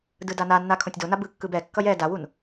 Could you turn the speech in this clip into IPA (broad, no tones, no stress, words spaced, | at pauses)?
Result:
dɯdananːa kʰõtʲdona bɯkːɯb ɛkːʌj ɛ dawun